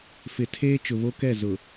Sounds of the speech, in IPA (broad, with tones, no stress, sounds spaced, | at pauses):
f ɪ˨ tʰ eː˦ t͡ʃ ʊ˨ β o˦ k ɛ˦˨ z ʊ˨